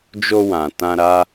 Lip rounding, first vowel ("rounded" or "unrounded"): rounded